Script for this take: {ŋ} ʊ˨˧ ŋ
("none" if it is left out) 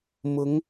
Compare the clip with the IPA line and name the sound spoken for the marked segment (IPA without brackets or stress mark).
m